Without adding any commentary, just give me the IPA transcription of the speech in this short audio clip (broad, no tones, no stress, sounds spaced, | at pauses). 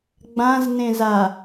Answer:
ɡ͡b ã z n ẽ z a